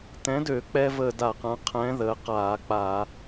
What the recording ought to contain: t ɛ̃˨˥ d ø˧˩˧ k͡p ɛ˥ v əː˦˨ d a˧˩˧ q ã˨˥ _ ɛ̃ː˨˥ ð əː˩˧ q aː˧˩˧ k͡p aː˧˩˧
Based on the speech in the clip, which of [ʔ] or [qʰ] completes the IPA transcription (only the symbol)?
qʰ